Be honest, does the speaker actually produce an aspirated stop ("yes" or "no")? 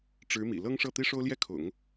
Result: yes